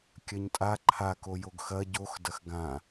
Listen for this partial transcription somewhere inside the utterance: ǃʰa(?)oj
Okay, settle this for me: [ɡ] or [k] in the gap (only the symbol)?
k